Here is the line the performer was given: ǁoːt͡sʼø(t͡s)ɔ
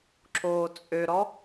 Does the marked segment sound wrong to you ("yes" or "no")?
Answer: yes